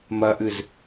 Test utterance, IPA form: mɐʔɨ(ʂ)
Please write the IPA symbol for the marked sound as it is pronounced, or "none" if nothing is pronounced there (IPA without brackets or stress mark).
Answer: z